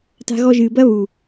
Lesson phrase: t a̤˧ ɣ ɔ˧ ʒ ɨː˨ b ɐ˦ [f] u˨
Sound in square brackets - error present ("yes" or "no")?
yes